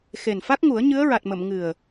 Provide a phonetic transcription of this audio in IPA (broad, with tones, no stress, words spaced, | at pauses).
xe˨˩nfa˦˥k̚ŋu˨˩˦ə̯ ɲɨ˧˥ə̯ɹa˨˩t̚mə˨˩˨m ŋɨ˨˩ə̯